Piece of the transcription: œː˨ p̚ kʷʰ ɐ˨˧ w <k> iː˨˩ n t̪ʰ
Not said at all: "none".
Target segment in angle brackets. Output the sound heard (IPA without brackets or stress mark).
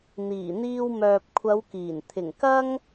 k